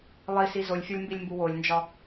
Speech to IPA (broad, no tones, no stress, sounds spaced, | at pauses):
lˠ i s i z o lʲ fʲ ɒ lʲ m b i lʲ m b u w o lʲ n d͡ʒ ɒ